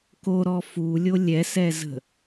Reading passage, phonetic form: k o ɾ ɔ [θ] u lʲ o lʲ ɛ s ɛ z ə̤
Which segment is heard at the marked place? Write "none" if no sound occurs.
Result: f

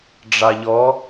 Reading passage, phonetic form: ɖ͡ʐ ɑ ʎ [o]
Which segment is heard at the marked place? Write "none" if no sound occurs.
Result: ɔ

